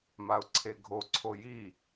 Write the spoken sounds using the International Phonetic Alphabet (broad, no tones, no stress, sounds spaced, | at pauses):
m a ʊ̯ ǀʰ e ɡʱ o ǀʰ o j i